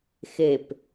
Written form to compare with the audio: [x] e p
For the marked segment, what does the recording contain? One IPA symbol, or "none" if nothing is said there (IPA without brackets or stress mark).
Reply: x